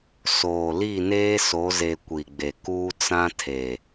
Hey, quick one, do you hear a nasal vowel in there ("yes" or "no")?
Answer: yes